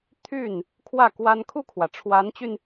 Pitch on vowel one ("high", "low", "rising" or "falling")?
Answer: falling